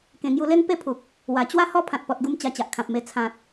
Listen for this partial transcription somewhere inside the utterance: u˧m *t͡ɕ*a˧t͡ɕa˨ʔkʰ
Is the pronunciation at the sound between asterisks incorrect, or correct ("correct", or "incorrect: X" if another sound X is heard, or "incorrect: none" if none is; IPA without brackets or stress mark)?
correct